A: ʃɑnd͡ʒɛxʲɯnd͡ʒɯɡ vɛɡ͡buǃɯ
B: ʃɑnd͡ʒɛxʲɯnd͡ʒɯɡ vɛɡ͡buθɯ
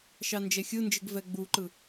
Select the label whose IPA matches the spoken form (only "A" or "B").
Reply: A